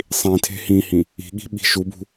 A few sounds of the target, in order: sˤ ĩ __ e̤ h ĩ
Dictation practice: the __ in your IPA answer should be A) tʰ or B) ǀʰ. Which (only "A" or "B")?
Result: A